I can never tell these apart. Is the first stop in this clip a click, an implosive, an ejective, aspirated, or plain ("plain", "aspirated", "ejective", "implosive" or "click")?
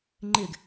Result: click